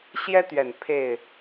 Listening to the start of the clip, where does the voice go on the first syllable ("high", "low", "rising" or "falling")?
high